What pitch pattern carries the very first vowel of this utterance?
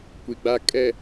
low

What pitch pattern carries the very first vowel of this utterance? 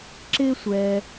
high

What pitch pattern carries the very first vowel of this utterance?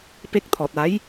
high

